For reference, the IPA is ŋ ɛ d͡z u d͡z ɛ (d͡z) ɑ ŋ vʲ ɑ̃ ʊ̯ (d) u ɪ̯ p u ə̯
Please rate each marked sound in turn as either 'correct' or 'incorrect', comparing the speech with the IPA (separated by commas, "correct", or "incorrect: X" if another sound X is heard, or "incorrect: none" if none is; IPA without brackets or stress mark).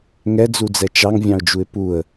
incorrect: t͡ʃ, incorrect: d͡ʒ